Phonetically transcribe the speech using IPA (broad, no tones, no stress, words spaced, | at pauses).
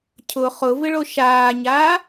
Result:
cʰʊ χʊvɪɭo ʃaːɲaː